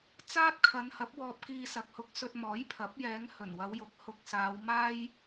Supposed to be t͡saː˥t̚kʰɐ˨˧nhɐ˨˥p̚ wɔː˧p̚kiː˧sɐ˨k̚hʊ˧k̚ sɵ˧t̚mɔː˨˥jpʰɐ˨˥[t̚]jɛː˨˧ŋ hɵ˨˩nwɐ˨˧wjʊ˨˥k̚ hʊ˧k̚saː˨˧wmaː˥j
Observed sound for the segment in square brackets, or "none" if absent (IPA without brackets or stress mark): p̚